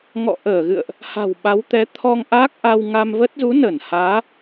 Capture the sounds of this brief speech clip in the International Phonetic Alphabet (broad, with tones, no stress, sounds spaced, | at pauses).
ŋ ɔ̰˧˨ ʔ əː˧˩ ɣ ɨ̰˧˨ ə̯ ʔ | h a̤˨˩ w ɓ a˨˦ w t̪ ɛ˨˦ t̪ʰ ɔ˧ ŋ ʔ a˦˥ k̚ ʔ a˧ w ŋ a˧ m v ə˦˥ t̚ z u˨˦ n ə˧˩ n h aː˨˦